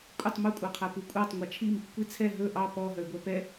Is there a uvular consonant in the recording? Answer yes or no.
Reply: yes